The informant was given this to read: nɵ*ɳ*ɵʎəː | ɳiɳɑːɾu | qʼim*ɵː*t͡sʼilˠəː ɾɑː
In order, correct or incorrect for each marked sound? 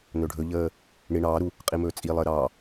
incorrect: ɖʱ, correct

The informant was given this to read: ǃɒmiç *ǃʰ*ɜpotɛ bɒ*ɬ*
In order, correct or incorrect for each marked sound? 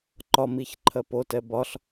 correct, correct

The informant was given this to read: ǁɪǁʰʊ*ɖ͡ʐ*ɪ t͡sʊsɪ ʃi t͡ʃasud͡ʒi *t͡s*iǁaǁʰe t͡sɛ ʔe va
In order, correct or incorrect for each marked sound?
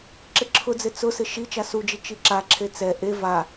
incorrect: d͡z, incorrect: t͡ʃ

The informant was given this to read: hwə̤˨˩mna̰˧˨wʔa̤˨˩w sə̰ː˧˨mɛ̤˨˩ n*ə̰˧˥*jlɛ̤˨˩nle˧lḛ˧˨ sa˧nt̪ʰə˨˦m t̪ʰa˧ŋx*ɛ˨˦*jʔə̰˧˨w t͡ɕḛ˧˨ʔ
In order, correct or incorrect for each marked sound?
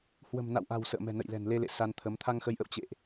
incorrect: ə̰˧˨, incorrect: ə˨˦

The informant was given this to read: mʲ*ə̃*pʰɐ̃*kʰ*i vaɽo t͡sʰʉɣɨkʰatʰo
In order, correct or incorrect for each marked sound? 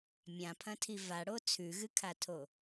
incorrect: ã, incorrect: tʰ

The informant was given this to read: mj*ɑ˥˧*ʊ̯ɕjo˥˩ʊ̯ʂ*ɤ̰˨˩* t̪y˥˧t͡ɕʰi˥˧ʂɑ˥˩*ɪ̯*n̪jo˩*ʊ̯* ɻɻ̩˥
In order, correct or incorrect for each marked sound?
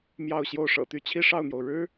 correct, correct, incorrect: ʊ̯, correct

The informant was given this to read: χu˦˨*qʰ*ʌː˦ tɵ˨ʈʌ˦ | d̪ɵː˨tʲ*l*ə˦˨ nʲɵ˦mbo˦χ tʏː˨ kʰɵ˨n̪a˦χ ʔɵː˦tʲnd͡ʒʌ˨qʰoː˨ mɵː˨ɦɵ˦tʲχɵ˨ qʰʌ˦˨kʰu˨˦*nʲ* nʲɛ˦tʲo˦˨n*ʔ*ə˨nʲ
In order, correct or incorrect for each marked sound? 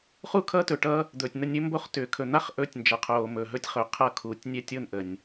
incorrect: kʰ, incorrect: n̪, incorrect: tʲ, correct

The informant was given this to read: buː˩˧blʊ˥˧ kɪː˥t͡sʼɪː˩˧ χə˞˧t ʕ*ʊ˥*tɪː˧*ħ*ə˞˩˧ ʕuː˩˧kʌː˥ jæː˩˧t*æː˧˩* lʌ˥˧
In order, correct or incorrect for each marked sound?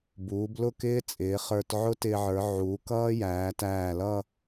correct, incorrect: ʕ, correct

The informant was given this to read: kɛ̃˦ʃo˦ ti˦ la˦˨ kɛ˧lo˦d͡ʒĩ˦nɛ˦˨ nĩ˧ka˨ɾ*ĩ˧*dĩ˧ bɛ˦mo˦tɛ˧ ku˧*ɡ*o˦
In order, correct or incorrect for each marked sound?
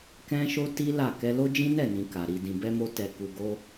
incorrect: i˧, correct

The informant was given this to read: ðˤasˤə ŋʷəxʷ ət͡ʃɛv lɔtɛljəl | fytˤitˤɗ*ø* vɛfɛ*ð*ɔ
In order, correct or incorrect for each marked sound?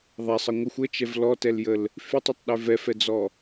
correct, incorrect: d͡z

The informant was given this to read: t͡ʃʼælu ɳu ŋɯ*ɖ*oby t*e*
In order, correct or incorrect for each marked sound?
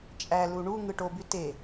incorrect: ʈ, correct

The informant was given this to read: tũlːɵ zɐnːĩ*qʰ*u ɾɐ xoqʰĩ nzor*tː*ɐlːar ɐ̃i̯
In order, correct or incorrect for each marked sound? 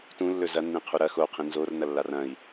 correct, incorrect: n

